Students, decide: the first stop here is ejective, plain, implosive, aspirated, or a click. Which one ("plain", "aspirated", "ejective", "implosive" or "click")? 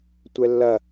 plain